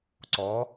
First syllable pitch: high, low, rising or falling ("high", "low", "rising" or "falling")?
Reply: rising